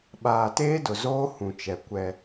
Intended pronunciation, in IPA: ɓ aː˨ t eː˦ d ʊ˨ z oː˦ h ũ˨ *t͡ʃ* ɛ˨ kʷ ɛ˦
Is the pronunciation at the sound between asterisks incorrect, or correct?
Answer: correct